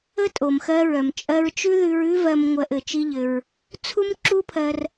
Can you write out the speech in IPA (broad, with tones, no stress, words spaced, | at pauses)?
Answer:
ə˦tʼo˨mxɜ˧ɹœ˨m t͡ʃʼɜ˧ɹt͡ʃʉ˦ðʉ˧ɹ ʉ˦vɜ˧m ŋʷɜ˧ʔɘ˨t͡ʃi˦ʎɘ˧ɹ | t͡sʰu˦mǁu˦pʰɜ˧r